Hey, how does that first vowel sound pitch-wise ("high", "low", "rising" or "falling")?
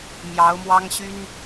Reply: rising